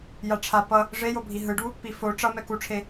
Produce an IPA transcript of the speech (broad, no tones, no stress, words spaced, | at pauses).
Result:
jaʈ͡ʂʰa pʌ | ʐejobʱi ɦɯɖu | pifo ʈ͡ʂʌ mɛkuʈ͡ʂʰe